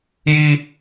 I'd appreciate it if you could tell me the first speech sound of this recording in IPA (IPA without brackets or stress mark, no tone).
j